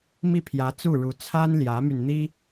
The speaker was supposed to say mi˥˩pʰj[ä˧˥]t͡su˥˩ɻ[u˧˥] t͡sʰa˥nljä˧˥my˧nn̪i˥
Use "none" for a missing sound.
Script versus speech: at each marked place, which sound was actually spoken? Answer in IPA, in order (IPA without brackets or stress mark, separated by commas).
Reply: ä˧˥, u˧˥